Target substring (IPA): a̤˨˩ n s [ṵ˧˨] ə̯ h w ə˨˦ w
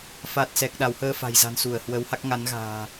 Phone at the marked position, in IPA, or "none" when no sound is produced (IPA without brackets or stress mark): u˧˩